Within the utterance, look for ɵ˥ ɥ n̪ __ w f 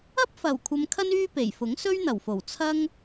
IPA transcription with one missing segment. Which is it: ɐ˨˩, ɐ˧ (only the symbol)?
ɐ˨˩